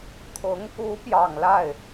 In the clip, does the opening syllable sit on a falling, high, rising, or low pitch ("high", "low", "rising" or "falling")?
rising